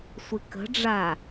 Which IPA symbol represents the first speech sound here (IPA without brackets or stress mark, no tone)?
sʷ